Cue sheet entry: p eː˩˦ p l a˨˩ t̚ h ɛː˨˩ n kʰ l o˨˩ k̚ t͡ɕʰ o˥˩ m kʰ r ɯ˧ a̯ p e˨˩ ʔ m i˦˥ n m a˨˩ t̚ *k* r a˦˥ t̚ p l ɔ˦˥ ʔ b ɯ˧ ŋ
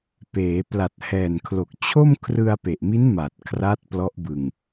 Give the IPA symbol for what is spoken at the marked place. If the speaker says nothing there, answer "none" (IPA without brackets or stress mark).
kʰ